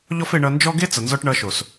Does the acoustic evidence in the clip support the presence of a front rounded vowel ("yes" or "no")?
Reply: no